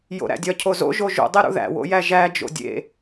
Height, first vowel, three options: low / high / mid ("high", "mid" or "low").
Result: mid